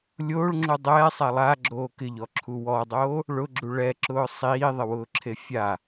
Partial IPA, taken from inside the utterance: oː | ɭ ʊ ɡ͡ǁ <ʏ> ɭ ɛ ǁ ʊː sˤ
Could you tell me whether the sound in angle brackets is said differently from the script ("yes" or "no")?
yes